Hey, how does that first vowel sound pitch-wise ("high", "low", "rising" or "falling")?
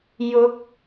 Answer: rising